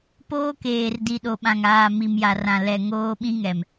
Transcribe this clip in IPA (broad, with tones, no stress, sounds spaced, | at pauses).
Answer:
p oː˦ k eː˨ r d i˨ ɗ o˨ ɓ ã˨ ŋ aː˨ m i˨ m j a˨ r ã˨ l ɛ˨ ŋ oː˦ ɓ ĩ˦ ŋ ɛ˨ m